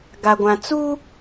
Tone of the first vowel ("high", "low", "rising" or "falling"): low